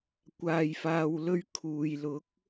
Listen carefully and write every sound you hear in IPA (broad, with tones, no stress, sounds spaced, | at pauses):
kʷ aː˧ j f aː˧ w l ɵ˥ ɥ kʰ uː˨ j l ʊ˨˥ k̚